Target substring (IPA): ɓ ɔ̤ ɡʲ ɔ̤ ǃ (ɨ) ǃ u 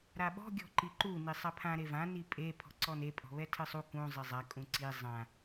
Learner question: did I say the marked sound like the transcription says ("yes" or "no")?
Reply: no